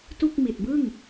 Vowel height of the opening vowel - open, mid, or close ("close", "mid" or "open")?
close